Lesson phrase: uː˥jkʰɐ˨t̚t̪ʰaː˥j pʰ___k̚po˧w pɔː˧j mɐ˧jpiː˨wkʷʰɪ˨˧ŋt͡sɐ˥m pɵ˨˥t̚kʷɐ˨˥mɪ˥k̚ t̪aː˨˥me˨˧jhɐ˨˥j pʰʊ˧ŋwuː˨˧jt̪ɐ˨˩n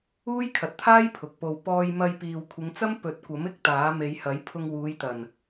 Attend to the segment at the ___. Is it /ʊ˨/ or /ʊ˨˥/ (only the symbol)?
ʊ˨